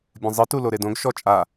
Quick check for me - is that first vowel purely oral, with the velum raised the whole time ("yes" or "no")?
no